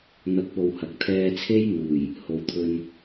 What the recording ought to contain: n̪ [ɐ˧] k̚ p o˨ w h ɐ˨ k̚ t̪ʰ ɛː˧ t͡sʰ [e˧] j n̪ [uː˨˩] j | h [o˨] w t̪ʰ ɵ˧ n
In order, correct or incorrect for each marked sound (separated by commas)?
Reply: correct, incorrect, correct, correct